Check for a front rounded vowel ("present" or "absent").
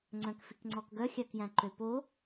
present